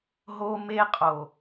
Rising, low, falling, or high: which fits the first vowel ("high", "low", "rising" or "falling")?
high